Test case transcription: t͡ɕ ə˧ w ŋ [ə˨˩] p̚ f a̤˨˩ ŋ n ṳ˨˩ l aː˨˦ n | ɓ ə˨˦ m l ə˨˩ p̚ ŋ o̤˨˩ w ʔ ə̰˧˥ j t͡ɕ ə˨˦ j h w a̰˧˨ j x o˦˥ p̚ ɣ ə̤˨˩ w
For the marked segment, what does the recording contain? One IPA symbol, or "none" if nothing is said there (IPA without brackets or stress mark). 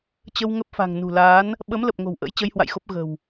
ə˦˥